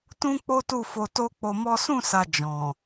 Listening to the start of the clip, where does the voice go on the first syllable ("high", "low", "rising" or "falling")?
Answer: high